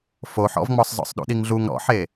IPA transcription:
f o ħ ɔ̰ v ŋ͡m ɔ sˤ z ɔ̰ sˤ ɗ ṵ ɗ i ŋ ɮ u ŋ ɾ ɔ̰ ħ e

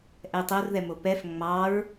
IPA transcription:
ʔ ɛ tˤ o r ð ɛ m o p ɛ f ŋ͡m ɑ ɹ

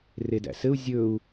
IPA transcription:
r e d æ̰ s ɘ u̯ zʲ ɵ u̯

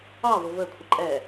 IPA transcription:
ɑ v ʊ v ə kʷʰ ə ǃʼ ɛ

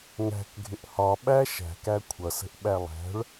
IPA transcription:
ŋ æ̤ k ɡʱ ɪ ʔ h ɒ ɓ æ ʃ æ̤ k æ kʷʰ ʌ s ə̤ ʔ ɓ æ lˠ æ̤ ɭ

